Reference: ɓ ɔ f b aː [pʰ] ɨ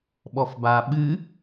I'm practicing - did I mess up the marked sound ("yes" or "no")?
yes